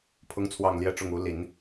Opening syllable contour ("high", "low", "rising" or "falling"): high